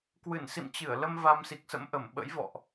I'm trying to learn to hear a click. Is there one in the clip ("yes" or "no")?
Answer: no